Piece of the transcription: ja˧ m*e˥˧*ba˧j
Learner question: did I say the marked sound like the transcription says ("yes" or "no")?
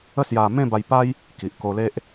no